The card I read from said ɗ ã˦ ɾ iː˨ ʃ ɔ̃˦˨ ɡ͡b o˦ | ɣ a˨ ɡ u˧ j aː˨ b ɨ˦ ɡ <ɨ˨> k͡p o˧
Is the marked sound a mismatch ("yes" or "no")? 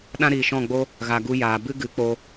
yes